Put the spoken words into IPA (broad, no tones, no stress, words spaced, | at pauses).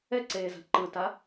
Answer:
ɛǀeːza̤ ǃɯta